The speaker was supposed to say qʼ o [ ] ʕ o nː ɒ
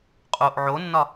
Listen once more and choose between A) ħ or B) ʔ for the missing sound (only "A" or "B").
B